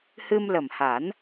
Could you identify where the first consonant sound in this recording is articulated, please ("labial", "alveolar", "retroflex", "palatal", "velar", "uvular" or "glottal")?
glottal